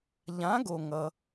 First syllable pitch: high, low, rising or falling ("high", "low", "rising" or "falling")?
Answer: rising